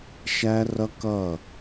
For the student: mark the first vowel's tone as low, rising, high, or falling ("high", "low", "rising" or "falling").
high